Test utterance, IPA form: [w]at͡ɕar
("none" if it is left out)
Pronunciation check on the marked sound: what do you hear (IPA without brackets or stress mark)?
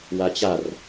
w